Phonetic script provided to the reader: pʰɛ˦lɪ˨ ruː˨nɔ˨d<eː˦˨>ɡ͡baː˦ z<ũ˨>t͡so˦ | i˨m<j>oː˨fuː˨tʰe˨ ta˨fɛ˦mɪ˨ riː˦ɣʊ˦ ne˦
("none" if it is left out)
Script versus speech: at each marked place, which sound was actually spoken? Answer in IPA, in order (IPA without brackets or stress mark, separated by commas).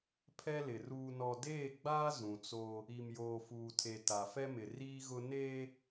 eː˦˨, ũ˨, j